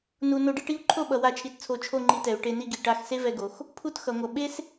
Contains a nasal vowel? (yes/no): no